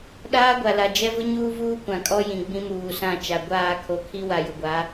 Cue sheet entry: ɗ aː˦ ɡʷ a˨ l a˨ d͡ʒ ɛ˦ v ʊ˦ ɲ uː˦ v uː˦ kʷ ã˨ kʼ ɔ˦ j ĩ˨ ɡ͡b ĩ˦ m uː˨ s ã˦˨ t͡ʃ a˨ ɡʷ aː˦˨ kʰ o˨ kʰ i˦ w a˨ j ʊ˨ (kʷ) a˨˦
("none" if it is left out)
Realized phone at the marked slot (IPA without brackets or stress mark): ɡʷ